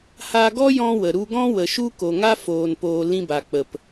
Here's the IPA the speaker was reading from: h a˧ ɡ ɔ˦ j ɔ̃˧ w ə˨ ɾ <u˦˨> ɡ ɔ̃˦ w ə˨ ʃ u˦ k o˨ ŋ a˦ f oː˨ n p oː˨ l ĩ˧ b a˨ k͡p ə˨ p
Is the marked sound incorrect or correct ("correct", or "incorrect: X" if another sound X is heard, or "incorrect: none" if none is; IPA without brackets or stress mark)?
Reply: incorrect: u˧